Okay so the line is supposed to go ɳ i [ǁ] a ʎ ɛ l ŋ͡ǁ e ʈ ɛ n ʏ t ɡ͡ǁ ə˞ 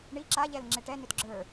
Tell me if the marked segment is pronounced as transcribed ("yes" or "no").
yes